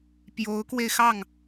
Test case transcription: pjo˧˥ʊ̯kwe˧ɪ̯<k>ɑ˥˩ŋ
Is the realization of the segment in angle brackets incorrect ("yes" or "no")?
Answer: yes